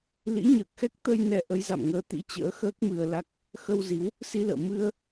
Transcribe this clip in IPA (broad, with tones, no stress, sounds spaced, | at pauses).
l ḭ˧˥ ɲ əː˨˩ k̚ x ɛ˦˥ k̚ t̪ ə˧ j n ɛ˧ ʔ ə˨˦ j z a̰˧˨ m ŋ əː˨˦ t̪ ḭ˧˥ t͡ɕ ə̰ː˧˥ x əː˦˥ k̚ m ɨ˧ ə̯ l a˦˥ k̚ | x ə˧ w z i˨˦ w | s i˧ l ə̰ː˧˨ m ɨ˧ ə̯